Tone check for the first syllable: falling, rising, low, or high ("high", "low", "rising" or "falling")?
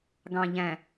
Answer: low